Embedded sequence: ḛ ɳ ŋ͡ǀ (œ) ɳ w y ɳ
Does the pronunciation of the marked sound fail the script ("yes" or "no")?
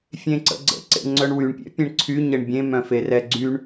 no